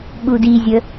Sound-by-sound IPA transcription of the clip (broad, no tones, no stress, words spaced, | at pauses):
ɓudizʲə